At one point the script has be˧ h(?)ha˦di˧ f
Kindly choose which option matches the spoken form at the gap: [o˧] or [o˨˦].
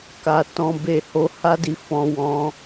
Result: o˧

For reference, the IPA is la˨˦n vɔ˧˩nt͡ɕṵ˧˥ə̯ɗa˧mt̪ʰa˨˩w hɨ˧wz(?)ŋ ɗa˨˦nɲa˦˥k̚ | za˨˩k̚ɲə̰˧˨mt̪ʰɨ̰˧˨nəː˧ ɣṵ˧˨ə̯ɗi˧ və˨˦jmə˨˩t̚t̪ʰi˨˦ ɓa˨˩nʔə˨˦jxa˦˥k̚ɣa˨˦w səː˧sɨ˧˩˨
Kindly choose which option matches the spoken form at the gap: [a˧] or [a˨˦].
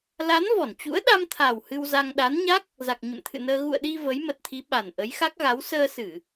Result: a˧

